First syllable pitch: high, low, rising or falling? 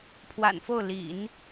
low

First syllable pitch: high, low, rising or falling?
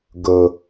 high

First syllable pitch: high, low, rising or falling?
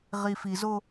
low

